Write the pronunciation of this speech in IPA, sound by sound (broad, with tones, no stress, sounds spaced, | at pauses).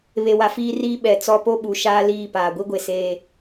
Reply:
β e˨ w a˨ f iː˦ r iː˦ ɓ ɛ˨ t͡s ɔ˦ p o˦ ɓ u˨ ʃ aː˦ l iː˦˨ p aː˨ ɡʷ i˦ ɡʷ e˨ s eː˦